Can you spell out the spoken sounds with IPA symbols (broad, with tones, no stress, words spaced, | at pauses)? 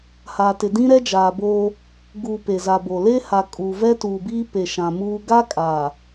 ha˨tɪ˨ dĩ˦ɾɛ˦d͡ʒaː˨boː˦ | ɡuː˨ pe˨za˨bo˨ le˦ha˨ kʼuː˨vɛ˦tuː˨biː˦ pe˨ʃã˨muː˦ ɡa˦ kʼa˨